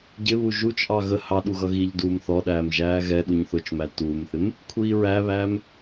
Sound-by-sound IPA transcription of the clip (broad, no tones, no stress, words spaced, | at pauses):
ɟɪ βuʒut͡ʃʔɑ ɣə hɑɗu ɣʌɣiʎduːm θɔɗæːm ʒæːɣɛɗuɲ θʊt͡ʃmæ tuːmθɪm | kʷʰiːɹæβæːm